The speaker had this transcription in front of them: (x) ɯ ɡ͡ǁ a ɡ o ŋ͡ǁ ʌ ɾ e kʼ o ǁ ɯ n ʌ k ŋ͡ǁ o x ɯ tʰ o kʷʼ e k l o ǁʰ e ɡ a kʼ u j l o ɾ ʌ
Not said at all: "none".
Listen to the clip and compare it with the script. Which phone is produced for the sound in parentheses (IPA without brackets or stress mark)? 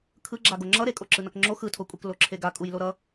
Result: kʰ